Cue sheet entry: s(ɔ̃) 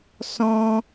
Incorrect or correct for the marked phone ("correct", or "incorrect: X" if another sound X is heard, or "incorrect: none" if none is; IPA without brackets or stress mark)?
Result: correct